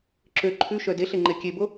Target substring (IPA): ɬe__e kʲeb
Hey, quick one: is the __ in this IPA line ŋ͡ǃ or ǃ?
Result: ŋ͡ǃ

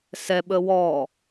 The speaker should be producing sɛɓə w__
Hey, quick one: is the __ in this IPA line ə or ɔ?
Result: ɔ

